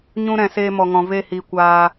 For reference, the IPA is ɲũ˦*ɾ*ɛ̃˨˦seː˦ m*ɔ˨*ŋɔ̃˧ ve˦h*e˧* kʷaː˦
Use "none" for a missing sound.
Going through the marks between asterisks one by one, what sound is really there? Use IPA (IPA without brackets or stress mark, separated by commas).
ɾ, ɔ˧, i˧